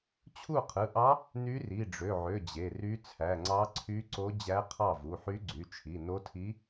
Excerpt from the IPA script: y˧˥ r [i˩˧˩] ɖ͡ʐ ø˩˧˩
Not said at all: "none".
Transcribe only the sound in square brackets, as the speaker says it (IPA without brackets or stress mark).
i˩˧˩